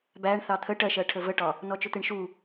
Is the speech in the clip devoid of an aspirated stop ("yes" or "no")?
no